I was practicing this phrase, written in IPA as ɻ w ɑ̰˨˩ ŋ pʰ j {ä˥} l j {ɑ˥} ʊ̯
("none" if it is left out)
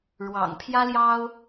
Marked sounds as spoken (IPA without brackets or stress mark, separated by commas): ä˥, ɑ˥